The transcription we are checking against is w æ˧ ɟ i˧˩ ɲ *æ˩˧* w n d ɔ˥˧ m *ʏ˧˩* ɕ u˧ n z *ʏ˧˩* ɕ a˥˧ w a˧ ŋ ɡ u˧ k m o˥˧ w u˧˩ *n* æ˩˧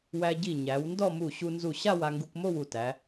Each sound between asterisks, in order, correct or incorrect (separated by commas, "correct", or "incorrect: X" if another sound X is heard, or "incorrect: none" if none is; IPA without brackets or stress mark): correct, incorrect: u˧˩, incorrect: u˧˩, incorrect: t